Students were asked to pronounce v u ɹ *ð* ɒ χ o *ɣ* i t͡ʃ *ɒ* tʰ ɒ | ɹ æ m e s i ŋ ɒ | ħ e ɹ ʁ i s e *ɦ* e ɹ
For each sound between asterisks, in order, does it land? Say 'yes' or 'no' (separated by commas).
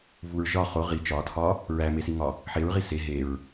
no, no, yes, yes